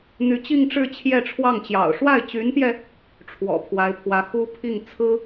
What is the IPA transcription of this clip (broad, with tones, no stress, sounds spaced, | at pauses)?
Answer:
n̪ y˧˥ t͡ɕ i˥˧ ŋ ʈ͡ʂ ɻ̩˥˧ t͡ɕʰ j ɛ˥˧ ʈ͡ʂʰ w ɑ˥˩ ŋ t͡ɕ j ɑ̰˨˩ ʊ̯ ʂ w a˥˩ ɪ̯ t͡ɕ y˧˥ n t̪ j ɛ˧ | ʈ͡ʂʰ w ɔ̰˨˩ pʰ w a˧˥ ɪ̯ pʰ w ä˧˥ x u˥ pʰ i˥˩ ŋ t͡sʰ ɹ̩˥